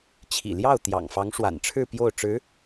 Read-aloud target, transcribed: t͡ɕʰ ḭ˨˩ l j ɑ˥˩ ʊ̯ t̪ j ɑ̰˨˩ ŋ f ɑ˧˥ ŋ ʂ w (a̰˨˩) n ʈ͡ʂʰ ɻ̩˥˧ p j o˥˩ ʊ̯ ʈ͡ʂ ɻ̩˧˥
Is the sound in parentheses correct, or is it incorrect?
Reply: correct